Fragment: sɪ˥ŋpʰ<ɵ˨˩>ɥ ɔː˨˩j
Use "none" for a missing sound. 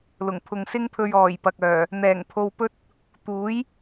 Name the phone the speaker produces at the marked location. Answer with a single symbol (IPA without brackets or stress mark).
ɵ˧